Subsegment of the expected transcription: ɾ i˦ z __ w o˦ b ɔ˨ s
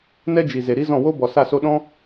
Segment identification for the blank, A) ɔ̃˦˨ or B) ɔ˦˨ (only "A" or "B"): A